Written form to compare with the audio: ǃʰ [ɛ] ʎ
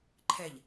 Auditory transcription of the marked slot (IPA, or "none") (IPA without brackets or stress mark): ɛ